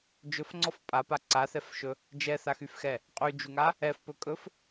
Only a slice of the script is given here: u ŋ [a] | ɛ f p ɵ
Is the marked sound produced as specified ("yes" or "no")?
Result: yes